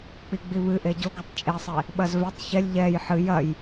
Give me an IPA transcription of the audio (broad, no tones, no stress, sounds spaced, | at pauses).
k͡p i ɡ͡b i β ɨ ʔ e ɟ o ɡ ɨ tˤ t͡ʃʼ e sˤ e | ɓ ɐ z v ɛ tˤ ç ɛ lʲ ʎ ɛ j ħ ɨ j ɐ j